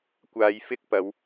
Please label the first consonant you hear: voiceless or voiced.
voiceless